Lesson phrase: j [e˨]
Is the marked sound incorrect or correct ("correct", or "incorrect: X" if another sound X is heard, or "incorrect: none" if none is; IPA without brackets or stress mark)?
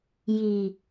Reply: incorrect: i˨